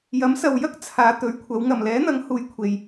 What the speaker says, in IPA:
jɐ˨˥msɐ˨wjɐ˥k̚ t͡sʰaː˨˧t̪ɵ˨˧ɥkʷʰɐ˨˧w ŋɐ˨˩mlɛː˨˥n̪ɐ˨˥ŋ huː˨˧j kʷʰe˨j

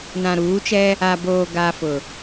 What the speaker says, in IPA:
nã˨ɾuː˨˦t͡ʃɛ˦ | a˨boː˨ ɡaː˨ fʊ˨

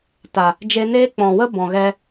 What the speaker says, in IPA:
ta˨ | d͡ʒe˧neː˦ k͡pɔ̃˨wə˦ bɔ̃˨ɣɛ˧

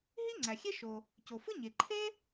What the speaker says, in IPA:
ɦi˥ ŋ͡ǀæ˩xʲe˥ʃo˩ | co˩fɯ˥ɲe˩ ǃʰe˥

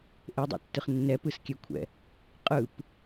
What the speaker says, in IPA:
ʔedˤɛ̰tːɯχ nːɛpɯskʲɛkʷʰɛ̰ | qʼɯp

